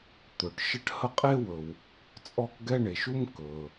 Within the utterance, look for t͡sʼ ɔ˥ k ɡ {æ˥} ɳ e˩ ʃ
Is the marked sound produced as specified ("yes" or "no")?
no